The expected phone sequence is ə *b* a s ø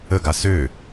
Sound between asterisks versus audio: incorrect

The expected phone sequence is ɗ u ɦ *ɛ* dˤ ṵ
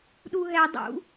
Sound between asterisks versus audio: correct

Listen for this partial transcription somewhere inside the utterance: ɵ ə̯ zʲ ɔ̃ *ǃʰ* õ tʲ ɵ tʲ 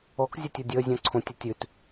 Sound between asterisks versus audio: incorrect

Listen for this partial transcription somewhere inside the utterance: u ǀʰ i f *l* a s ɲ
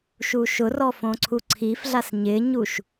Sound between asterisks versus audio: incorrect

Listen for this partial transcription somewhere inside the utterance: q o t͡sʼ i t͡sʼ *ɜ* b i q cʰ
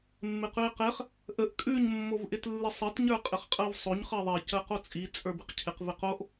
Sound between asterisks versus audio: incorrect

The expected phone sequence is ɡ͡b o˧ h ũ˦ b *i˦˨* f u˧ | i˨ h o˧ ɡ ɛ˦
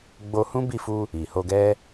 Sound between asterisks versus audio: correct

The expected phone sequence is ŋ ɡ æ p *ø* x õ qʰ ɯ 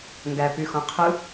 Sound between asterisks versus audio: incorrect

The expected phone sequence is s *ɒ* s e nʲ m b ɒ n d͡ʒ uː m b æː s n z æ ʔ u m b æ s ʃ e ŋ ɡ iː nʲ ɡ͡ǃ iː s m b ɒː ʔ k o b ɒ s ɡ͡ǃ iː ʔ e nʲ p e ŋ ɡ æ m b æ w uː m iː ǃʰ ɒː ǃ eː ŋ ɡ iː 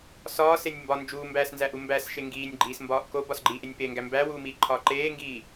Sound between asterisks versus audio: incorrect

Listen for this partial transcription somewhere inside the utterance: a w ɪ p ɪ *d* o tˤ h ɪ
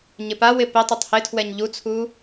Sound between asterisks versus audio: incorrect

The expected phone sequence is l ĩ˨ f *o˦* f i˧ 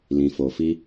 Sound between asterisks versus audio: incorrect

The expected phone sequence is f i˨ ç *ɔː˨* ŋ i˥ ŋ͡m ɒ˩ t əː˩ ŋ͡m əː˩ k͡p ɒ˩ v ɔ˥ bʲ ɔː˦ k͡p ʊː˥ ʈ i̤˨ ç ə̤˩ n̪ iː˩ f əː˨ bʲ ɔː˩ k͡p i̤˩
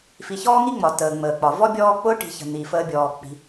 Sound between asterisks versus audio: incorrect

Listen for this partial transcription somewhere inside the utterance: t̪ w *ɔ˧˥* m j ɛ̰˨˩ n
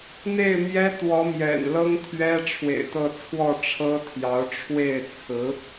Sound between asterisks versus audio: correct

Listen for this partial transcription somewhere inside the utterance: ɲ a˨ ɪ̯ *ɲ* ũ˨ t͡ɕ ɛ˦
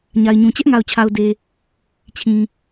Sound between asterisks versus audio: correct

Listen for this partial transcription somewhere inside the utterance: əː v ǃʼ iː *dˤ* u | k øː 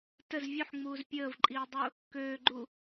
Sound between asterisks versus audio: correct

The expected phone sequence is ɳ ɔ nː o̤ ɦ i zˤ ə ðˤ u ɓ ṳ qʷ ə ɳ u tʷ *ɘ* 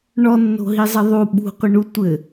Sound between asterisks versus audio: correct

